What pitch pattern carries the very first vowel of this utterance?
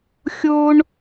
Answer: high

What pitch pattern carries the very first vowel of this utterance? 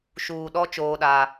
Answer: low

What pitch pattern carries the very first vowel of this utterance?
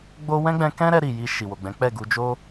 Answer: high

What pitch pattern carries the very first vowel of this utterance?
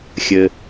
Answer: low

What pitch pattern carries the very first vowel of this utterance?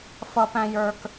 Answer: high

